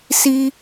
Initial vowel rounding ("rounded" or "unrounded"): unrounded